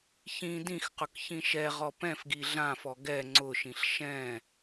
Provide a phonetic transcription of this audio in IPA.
çĩ dĩxqʊk çĩʃɛʁɔ pɛ̃fɡi ɮãfɔ ɡɛ ŋ͡ǀʊʃĩɬ ʃɛ̃

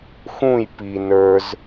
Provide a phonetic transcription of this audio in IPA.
xũj pi nə˞z

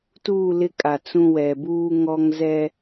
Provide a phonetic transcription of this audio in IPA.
tuː˦˨lɪ˦ kʼa˨ t͡sũ˦wɛ˨ buː˦ŋɔ˦ŋzɛ˦

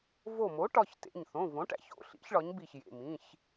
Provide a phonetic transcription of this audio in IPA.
vo˧˩mo˩˥ ʈɒ˩˧˩çtḛ˩˧˩ɲ θõ˩˧˩võ˩˥ʈæ̰˩˧˩ço̰˩˧˩ ɬḭ˩˥çɭɒ˩˥ɲbi˧˩çjḛ˩˧˩ mĩ˩˧˩ç

